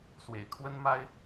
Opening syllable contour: low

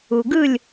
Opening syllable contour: low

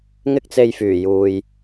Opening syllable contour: high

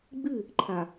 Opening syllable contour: falling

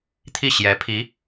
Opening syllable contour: falling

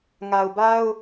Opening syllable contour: low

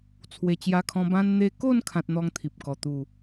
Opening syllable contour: low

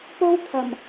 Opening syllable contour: high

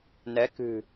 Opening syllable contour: rising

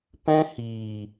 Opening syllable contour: high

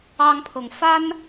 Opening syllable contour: high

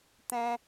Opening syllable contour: high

